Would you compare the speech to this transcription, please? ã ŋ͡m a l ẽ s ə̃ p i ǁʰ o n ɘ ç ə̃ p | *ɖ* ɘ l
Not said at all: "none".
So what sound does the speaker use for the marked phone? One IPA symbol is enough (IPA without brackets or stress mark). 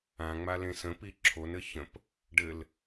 ɖ